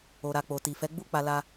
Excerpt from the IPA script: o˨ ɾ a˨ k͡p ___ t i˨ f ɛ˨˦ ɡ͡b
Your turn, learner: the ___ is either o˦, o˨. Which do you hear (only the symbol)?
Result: o˨